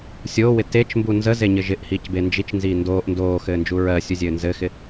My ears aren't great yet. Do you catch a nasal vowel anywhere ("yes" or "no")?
no